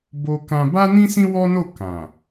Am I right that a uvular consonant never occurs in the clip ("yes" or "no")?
yes